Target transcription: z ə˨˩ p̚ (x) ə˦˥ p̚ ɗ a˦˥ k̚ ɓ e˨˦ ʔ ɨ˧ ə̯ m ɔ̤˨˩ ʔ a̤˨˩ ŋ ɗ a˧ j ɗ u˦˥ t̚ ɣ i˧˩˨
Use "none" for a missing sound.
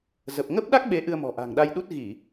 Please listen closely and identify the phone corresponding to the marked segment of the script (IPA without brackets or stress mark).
ŋ